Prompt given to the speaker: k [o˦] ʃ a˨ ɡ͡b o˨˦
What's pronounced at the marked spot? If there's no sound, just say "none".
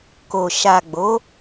o˨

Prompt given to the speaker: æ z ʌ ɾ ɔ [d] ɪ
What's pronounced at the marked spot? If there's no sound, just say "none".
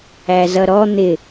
n̪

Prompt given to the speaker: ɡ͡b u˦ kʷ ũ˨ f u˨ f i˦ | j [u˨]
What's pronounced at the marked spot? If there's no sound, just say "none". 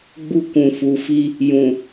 ũ˨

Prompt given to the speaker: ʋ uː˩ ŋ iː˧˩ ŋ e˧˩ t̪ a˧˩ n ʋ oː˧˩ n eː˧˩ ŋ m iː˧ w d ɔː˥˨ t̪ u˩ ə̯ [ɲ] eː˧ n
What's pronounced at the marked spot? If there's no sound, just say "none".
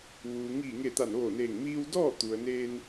n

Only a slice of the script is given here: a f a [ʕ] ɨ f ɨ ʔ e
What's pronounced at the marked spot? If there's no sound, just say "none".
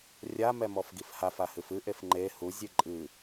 h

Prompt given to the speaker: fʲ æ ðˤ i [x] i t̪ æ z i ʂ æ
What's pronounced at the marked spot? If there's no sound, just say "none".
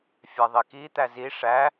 k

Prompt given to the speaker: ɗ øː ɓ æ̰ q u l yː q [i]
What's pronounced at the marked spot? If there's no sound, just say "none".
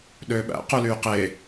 e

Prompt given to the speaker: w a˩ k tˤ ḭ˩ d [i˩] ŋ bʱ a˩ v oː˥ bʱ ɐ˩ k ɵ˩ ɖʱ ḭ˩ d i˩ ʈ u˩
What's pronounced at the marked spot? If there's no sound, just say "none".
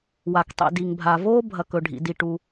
i˩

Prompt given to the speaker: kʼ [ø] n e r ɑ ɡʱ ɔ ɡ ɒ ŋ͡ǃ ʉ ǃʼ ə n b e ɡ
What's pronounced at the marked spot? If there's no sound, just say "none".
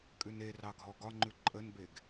ʉ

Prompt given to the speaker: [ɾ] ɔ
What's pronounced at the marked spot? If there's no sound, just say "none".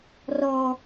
r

